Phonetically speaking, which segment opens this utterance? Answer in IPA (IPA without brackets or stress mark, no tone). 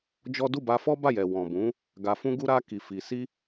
d͡ʒ